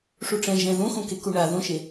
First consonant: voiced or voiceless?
voiceless